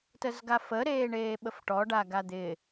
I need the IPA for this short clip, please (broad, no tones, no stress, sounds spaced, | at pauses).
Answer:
t ə z ɡ a f ə ɾ eː ɳ eː ɓ ə f ʈ ɔ ɖ a ɡ a d̪ ɪ